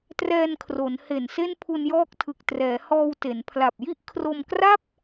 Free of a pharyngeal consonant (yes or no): yes